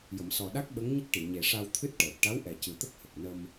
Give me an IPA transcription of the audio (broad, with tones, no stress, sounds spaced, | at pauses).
j ə˨˩˨ m s ɔ˨˩ ɗ a˦˥ k̚ ɓ ə˧˥ ŋ ɲ ə˦˥ k̚ ʈ i˨˩˨ ɲ e˨˩ ʂ a˧ w t̪ʰ ɨ˦˥ t̚ ʈ əː˨˩ p̚ ʈ a˧˥ w ʔ ɛ˨˩ c ɨ˨˩ t̪ ə˦˥ k̚ h ə˨˩ k̚ n ə˧ m